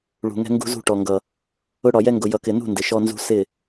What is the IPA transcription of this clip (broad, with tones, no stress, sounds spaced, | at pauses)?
ɭ ṳ˨ ŋ ɛ̤˦ ŋ ɡ ṳ˦ z ṳ˦˨ ʈ ɔ˨ ŋ ɡ ʌ˨ | ʊ˦ ɽ ɒ˨ j ɛ˦ ŋ ɡ ʊ˨ j ʌ˨ k ɪ˨ n ṳ˦˨ n d ɪ˨ ʃ ɔ˦ n z ṳ˦ s ɪ˦˨